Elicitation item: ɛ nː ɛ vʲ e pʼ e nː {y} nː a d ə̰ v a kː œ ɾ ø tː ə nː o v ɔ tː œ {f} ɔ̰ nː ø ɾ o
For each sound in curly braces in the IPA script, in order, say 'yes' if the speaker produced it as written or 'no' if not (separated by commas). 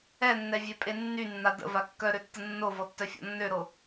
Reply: yes, no